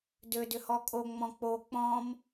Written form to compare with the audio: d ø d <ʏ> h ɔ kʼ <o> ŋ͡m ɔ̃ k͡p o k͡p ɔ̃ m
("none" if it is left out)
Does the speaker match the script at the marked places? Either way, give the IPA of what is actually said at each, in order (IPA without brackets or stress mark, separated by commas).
ʏ, o